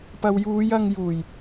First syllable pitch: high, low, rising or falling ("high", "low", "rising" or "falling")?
low